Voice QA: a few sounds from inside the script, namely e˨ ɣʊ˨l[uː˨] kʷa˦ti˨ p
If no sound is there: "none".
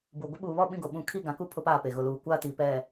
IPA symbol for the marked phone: uː˨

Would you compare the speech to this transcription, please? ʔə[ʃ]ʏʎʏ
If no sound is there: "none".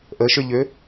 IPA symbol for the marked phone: ʃ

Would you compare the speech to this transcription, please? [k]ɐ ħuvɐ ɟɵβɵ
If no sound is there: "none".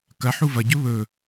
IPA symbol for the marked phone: k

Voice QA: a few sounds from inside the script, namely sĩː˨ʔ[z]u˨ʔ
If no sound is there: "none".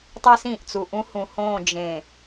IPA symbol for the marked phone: t͡s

